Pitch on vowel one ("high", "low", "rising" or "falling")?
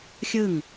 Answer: falling